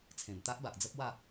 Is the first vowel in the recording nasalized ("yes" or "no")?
yes